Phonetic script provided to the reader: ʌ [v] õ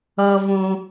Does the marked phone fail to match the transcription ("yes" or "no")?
no